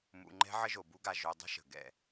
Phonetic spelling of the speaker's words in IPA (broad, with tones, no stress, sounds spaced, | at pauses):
m ṵ˨ ŋ͡ǃ ɛ̤˦ ʕ ə˦ ʒ o˨ b u˦ ɡ a˧ ʒ o˧ dˤ ə̤˦ ʃ ə̤˨ ɡ ɛ̰˦˨